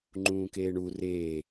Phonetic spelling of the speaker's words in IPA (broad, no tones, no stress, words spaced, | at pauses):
ŋ͡ǃũːkeːɳu reː